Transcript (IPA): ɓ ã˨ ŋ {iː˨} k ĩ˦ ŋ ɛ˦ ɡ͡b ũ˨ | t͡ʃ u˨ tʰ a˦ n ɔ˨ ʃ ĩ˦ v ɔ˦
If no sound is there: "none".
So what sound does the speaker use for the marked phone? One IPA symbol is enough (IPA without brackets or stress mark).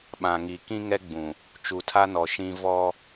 i˨